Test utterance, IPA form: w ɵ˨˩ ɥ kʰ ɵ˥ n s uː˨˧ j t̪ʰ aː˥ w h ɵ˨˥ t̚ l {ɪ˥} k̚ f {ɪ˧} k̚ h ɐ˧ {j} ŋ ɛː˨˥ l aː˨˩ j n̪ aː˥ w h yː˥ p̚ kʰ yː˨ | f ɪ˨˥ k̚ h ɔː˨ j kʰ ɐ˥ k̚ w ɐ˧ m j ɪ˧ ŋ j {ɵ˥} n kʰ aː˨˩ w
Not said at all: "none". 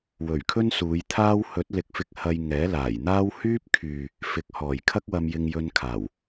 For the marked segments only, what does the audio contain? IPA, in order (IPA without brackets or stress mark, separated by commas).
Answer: ɪ˨˥, ɪ˧, j, ɵ˧